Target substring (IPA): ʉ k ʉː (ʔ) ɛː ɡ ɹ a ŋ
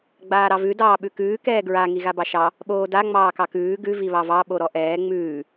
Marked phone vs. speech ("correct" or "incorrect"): incorrect